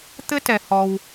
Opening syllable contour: high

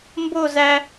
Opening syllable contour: falling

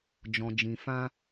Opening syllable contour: low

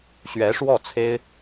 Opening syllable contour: rising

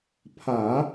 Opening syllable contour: low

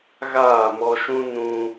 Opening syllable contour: falling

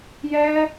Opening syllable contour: high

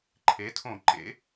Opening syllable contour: rising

